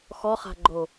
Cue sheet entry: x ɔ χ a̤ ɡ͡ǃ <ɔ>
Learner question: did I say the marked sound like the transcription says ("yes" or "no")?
no